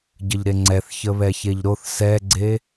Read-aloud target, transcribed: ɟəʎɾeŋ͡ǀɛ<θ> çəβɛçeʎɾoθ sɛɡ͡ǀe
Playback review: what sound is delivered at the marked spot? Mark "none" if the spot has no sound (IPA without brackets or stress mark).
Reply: θ